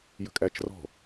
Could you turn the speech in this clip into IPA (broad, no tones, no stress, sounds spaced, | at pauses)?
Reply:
j ə̤ kʼ æ t͡ʃ r ɔ̤